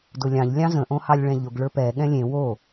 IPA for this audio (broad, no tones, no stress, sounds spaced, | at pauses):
d ʊ lʲ ɑ̃ ʎ lʲ ɑ̃ z ə̃ ʔ õ h ɑ lʲ ɭ ɛ̃ ʎ ʊ ɡ ɭ ə˞ p ɛ ɠ ɛ̃ lʲ ẽ w o